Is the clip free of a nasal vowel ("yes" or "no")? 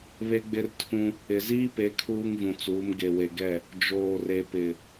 no